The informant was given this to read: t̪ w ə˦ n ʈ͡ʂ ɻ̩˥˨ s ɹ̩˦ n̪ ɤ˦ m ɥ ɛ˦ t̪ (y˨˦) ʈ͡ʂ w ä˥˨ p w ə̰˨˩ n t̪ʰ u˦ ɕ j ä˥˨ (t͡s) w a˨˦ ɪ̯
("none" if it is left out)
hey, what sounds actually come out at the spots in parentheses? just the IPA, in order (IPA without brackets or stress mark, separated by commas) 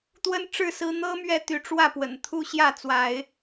y˨˦, t͡s